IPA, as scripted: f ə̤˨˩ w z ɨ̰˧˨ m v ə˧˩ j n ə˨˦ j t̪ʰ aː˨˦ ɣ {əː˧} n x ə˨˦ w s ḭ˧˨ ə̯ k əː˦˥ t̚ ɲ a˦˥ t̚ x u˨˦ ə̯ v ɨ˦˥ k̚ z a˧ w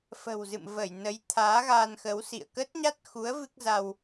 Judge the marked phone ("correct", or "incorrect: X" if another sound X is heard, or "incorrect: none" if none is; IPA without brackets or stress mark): incorrect: aː˧